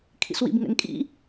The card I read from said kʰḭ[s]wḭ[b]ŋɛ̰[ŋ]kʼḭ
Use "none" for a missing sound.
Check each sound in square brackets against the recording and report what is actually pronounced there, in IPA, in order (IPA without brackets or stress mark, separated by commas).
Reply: s, b, ŋ